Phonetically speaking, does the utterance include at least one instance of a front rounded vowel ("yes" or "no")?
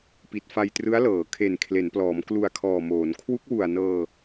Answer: no